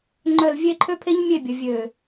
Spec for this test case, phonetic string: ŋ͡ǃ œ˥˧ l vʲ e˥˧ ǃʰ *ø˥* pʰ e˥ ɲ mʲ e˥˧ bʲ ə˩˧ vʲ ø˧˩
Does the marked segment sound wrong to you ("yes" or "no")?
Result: no